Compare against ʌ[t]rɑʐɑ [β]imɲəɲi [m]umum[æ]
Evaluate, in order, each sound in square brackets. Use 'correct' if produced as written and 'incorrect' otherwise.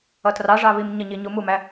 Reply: correct, correct, incorrect, correct

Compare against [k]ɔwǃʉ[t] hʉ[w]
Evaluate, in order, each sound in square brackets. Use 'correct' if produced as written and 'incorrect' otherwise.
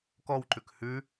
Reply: correct, incorrect, incorrect

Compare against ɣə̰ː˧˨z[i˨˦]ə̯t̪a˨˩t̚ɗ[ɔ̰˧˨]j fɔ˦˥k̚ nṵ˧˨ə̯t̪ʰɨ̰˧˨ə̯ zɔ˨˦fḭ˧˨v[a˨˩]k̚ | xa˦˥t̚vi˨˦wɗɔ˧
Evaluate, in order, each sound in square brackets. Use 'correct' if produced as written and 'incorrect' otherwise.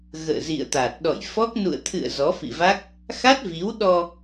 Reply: incorrect, correct, incorrect

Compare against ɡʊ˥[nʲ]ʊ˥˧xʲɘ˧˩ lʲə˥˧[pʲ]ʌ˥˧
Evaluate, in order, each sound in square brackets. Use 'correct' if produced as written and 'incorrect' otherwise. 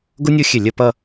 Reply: correct, incorrect

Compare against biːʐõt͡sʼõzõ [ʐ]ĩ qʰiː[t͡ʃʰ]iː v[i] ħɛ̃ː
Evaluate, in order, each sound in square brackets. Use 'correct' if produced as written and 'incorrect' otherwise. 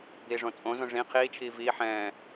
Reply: correct, correct, incorrect

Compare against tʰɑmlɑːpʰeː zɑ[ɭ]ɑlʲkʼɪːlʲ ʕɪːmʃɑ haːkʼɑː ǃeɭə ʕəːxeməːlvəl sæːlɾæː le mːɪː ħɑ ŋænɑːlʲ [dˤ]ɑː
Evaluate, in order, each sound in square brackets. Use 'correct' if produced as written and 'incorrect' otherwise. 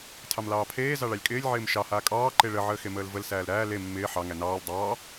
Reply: correct, correct

